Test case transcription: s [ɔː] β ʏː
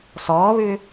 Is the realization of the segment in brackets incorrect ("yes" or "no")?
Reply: no